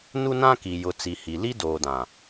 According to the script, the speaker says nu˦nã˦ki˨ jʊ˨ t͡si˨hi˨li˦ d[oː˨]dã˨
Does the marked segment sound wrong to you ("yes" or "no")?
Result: no